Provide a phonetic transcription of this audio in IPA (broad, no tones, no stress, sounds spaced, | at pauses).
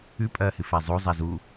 ʉ pʼ ɐː h ɨ f a zˤ o zˤ a z u